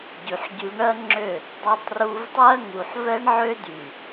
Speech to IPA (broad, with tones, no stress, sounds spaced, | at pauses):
ɟ y˨ ħ ɟ y˧ ɳ ɜ˦ ŋ͡ǁ ø˦˨ | dˤ ɜ˧ tˤ r u˧ v tˤ ɜ˦ ŋ u˨ ħ v ɛ˦ ɳ ʕ ø˦ d y˨